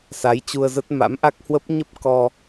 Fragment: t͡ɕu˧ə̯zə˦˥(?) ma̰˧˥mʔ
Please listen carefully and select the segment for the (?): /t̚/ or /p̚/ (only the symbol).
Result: t̚